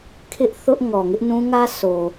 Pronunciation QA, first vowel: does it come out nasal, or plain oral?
oral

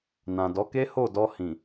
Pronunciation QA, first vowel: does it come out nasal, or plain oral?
nasal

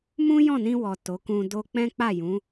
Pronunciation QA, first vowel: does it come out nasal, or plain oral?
nasal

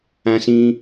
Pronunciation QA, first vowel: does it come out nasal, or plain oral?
nasal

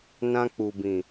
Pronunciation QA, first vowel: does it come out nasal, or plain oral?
nasal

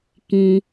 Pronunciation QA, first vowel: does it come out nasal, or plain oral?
nasal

